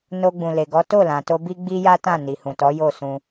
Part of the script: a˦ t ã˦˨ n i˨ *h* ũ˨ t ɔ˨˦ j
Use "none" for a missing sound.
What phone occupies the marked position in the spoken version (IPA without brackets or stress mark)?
h